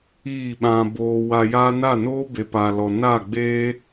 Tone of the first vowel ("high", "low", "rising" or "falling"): falling